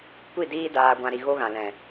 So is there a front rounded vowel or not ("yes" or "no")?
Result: no